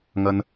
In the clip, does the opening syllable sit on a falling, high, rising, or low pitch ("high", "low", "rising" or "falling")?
high